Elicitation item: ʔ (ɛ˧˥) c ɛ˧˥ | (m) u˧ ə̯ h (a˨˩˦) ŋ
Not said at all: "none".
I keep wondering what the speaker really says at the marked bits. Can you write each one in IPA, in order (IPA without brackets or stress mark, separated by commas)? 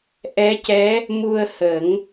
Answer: ɛ˧˥, m, ə˨˩˦